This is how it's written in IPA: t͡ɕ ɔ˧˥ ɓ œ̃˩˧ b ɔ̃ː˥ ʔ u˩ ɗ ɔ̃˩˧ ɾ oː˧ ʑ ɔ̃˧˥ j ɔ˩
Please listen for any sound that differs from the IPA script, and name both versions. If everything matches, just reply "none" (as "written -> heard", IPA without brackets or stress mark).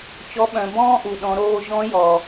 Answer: none